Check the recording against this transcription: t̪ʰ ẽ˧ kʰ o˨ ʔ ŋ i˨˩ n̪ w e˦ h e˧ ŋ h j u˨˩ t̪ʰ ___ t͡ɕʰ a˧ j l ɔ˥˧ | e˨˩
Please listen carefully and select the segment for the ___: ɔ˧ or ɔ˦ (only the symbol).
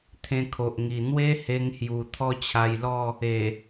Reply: ɔ˦